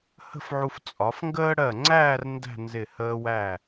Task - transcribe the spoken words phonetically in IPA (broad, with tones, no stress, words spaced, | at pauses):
hə̤˥˧fʕu˧f t͡sʼɒ˩˧fŋɡəː˥ ɽɜ˧˩ŋ͡ǀæː˥˧r ndæ̤˥˧nzɪ˧˩ həː˧ wæ˧˩